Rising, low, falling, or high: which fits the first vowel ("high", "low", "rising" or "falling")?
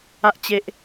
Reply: low